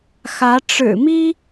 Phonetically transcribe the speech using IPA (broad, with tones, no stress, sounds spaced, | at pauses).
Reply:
x ä˧˥ ʈ͡ʂ ɻ̩˨˩ m i˥